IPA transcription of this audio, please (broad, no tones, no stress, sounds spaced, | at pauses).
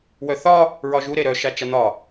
w œ θ ɒ | ɹ ɒ ʒ u ɾ e ɾ œ ʃ a t͡ʃ a n̪ ɒ